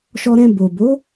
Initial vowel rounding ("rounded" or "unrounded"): rounded